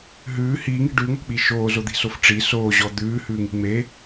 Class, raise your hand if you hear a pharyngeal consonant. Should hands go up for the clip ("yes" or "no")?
no